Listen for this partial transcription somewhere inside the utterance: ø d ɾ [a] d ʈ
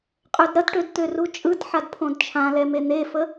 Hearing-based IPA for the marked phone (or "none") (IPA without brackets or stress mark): ɐ